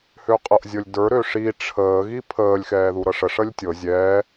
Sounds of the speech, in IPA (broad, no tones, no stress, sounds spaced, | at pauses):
h ø qʼ ɤ ʔ zʲ ɤ lʲ d ə˞ ɾ ø ʂ i ʈ͡ʂʰ əː ɣ i pʰ əː lʲ x ɛː ð u ɾ ɤ ʂ ə ʂ ə lʲ tʲ ɤ zʲ ɛː